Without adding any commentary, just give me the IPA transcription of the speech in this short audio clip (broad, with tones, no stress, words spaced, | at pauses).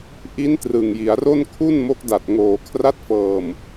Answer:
ʔi˦˥n trɯ˨˩ŋji˩˦a̯ro˥˩n kʰu˥˩nmo˦˥k̚ da˨˩t̚ŋoː˨˩ kʰra˦˥t̚fɤː˨˩m